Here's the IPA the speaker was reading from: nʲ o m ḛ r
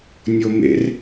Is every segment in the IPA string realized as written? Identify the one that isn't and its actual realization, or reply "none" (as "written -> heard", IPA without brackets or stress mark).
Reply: none